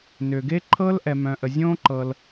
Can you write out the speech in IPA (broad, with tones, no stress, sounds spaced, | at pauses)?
n ʏ˩ ɡ e˥ ǃʰ ɤ˥ l ʔ ɛ˩ m œ̃˩ ʔ ə˩ zʲ õː˥ ǃ ɤ˩ l